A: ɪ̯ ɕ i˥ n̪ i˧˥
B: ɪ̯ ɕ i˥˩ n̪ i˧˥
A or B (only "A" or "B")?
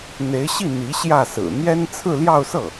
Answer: B